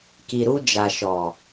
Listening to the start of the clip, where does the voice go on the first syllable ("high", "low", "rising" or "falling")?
low